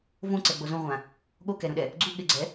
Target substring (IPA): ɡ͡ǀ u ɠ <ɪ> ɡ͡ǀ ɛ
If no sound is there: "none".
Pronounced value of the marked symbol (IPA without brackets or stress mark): ɪ